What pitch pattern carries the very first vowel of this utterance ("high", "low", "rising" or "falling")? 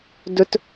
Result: high